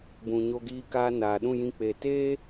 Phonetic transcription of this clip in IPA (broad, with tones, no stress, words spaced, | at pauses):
bũ˨ɲo˧ɡiː˧kaː˧ naː˨ɗũ˦˨jĩ˧ k͡pe˨teː˦